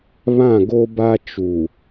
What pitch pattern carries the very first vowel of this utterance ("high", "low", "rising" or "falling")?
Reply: falling